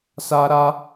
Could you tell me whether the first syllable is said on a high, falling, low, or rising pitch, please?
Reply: high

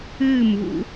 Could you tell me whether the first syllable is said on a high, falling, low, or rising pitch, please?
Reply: falling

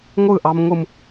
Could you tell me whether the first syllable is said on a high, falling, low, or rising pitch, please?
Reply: falling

